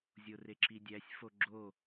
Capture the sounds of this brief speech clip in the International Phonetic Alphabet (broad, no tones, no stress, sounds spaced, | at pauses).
zʲ o r e ǁ i dʲ æ sʲ f o ɡ͡ǁ o